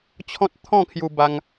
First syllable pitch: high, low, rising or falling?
high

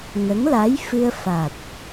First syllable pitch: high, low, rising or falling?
rising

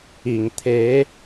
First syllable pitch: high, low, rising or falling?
low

